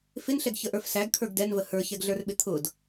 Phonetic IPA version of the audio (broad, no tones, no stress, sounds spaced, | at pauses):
f ɪ n ɬ ɛ ɡ ç ə ʔ ə˞ f s æ ɡ kʰ ə˞ ɡ d ɛ n v ə h ə˞ ç ɛ ɡ ɮ ə˞ r ɓ ɪ t̪ʰ ʊ d